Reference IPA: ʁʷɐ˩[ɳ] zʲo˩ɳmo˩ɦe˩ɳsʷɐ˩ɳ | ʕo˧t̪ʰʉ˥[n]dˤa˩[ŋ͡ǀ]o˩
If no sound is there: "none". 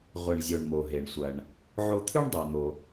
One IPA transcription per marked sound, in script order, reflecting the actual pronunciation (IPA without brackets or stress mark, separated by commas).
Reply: ɳ, ɳ, n̪